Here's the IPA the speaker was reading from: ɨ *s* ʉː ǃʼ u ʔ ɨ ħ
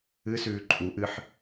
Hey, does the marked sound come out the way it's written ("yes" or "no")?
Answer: yes